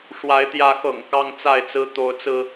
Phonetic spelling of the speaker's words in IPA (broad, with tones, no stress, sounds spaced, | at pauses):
ʂ w a˨˦ ɪ̯ t̪ j ä˨˦ x ɤ̰˨˩ ŋ k ɑ˦ ŋ t͡s a˥˨ ɪ̯ t͡s ɹ̩˦ t̪ o˨˦ ʊ̯ t͡s ɹ̩˧